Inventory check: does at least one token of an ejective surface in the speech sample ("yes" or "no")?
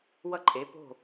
yes